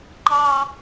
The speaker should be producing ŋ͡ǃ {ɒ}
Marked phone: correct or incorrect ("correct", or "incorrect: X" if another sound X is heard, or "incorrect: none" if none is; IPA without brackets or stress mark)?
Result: incorrect: ɑ